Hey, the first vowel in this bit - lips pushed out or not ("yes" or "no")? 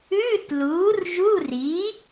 yes